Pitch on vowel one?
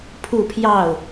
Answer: falling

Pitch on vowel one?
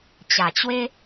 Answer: low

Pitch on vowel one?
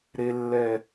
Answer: low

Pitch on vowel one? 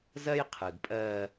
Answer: high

